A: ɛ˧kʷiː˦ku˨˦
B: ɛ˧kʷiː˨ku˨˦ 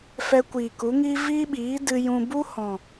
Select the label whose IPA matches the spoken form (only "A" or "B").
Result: B